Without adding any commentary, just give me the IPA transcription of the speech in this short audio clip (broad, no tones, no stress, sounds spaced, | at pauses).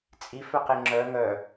t͡sʼ i f œ q e ŋ͡ǁ œ ŋ œ